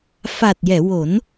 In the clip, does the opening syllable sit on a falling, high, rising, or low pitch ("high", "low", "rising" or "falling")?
low